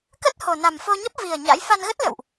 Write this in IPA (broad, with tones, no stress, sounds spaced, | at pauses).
k ə˦˥ t̚ h o˨˩ n a˨˩ m f o˧ ɲ ə˦˥ p̚ v i˨˩ ə̯ ɲ a̰˧˥ j f a˧ n ɣ ə˦˥ t̚ l ə̰˧˨ w ʔ